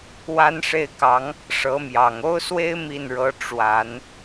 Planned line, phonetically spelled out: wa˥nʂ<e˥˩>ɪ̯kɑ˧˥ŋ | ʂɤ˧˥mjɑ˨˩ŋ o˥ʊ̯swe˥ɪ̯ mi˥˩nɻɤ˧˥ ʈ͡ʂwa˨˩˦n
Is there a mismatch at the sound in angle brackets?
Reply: no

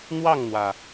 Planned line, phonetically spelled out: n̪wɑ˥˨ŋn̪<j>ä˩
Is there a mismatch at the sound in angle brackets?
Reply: yes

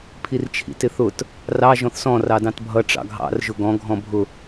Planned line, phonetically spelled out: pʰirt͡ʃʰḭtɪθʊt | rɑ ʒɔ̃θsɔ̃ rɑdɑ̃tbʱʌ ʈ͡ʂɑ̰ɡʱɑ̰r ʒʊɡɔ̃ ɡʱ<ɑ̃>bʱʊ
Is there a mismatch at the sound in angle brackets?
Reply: yes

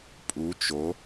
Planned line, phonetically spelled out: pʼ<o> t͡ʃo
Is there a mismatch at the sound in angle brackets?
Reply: yes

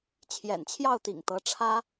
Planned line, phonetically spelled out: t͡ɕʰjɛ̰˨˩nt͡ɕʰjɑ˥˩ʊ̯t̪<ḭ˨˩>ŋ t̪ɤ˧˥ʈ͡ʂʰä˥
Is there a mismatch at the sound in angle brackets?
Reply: no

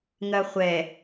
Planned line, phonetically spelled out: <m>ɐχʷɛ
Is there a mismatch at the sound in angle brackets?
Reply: yes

